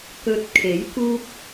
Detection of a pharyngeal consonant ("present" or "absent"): absent